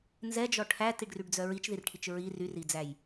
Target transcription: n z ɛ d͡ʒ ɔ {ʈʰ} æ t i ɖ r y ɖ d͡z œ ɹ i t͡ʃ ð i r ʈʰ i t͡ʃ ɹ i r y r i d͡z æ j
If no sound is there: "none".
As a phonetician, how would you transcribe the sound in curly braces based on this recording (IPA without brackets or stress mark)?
ʈʰ